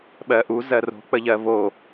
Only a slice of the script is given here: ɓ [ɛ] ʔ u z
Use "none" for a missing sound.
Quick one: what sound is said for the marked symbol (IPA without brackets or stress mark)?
ɜ